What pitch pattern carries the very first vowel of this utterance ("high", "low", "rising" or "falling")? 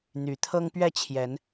rising